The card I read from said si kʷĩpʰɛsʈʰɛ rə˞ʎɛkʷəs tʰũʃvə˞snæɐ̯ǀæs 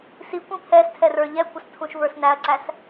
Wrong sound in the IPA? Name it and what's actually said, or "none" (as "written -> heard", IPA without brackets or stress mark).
ʈʰ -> tʰ